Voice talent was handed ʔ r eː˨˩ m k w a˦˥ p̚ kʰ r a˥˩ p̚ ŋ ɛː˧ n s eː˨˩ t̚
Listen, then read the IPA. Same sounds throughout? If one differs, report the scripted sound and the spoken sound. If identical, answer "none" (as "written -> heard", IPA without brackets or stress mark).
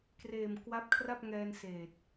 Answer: ʔ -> k